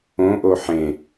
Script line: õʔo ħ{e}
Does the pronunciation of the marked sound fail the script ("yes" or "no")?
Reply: yes